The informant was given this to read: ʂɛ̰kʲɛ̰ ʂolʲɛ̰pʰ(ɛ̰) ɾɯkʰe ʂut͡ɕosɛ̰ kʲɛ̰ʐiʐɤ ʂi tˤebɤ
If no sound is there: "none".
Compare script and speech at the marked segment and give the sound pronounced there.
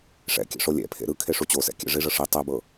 ḛ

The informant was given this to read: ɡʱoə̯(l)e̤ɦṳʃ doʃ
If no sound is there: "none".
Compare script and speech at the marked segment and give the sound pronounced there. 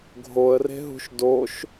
r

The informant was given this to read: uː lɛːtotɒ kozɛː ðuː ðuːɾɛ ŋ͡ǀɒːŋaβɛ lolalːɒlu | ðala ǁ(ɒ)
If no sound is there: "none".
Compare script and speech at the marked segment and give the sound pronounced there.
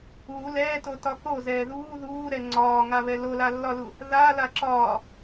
ɒː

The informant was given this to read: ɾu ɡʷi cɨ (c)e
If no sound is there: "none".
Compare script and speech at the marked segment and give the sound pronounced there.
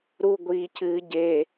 ɟ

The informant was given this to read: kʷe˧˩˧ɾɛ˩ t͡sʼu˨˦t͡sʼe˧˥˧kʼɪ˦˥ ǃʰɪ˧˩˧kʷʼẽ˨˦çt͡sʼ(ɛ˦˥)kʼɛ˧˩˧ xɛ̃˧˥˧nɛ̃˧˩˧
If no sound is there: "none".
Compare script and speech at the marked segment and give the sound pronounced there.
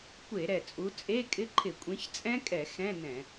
ɛ̃˦˥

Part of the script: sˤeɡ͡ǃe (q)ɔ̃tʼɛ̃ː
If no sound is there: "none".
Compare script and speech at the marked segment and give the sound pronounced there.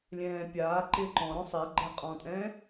qʼ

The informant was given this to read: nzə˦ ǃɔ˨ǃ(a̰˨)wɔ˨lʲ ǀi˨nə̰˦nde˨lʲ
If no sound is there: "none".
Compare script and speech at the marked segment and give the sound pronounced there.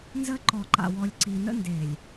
a̰˨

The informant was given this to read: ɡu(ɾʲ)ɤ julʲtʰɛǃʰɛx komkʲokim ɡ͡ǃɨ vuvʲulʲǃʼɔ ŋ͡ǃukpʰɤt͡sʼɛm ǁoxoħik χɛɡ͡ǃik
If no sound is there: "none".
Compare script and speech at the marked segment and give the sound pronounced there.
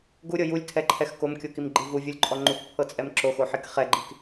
ɾʲ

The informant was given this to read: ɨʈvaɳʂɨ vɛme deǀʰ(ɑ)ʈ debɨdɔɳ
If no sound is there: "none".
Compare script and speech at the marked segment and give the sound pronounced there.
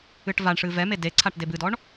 a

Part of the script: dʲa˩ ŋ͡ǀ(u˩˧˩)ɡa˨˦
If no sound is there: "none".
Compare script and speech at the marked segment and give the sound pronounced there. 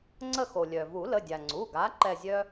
u˩˧˩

